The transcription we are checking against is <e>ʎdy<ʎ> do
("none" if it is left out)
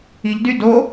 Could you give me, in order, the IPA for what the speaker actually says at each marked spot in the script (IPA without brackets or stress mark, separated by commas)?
i, none